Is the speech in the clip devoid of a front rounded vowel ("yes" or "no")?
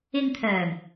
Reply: no